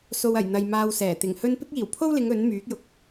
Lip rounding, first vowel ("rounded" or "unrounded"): rounded